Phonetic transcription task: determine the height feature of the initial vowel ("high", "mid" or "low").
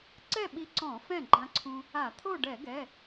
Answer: mid